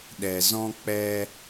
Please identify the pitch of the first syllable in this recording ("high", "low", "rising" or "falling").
low